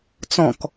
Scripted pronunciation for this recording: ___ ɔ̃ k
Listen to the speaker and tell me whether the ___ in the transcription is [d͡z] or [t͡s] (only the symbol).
t͡s